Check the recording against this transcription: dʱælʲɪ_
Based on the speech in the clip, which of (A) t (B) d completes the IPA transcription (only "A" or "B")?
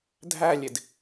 B